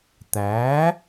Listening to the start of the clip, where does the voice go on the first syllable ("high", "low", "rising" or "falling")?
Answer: rising